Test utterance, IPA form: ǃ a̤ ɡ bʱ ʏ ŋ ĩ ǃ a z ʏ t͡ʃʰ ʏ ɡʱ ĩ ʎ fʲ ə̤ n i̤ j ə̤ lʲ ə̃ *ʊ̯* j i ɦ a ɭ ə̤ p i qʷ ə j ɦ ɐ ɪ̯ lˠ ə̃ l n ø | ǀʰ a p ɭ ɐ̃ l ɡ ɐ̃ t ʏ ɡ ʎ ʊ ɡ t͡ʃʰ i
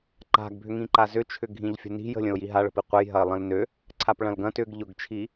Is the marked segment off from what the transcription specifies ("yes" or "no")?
no